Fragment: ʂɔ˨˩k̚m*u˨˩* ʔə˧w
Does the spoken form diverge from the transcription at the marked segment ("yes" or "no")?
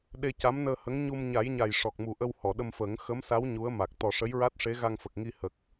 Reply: no